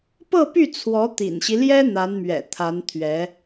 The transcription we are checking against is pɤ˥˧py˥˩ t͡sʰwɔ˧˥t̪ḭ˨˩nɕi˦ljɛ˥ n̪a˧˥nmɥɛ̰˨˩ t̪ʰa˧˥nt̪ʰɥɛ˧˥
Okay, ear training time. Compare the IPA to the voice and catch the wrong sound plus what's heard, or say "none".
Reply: none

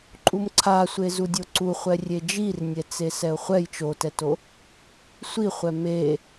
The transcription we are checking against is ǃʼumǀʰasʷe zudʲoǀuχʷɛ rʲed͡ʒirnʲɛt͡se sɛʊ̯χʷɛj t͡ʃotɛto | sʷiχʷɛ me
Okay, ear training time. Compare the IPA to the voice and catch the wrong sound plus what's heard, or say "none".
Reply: none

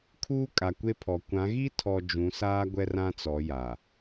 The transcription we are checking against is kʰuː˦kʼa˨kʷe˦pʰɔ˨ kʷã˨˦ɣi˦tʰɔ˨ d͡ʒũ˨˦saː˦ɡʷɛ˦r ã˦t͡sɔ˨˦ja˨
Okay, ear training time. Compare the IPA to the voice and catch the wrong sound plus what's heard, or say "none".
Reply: none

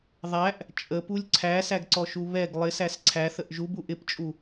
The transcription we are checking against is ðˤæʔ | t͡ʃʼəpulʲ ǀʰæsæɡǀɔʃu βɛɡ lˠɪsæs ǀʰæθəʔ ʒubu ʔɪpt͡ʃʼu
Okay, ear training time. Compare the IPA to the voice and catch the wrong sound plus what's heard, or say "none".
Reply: none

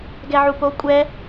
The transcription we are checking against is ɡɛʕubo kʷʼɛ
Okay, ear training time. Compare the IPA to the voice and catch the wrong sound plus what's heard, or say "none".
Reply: b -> p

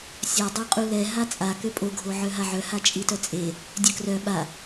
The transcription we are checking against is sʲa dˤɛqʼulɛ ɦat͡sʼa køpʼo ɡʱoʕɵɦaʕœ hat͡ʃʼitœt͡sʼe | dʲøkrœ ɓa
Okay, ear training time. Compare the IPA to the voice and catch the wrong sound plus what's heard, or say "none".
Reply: ɵ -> œ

